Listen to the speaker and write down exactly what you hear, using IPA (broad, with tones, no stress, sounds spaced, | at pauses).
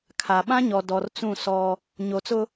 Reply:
kʰ a˨ ɓ ã˦ ɲ ɔ˨ d ɔ˨ r t͡s ũ˦˨ s ɔ˦ | ɲ o˨ t͡s ʊ˦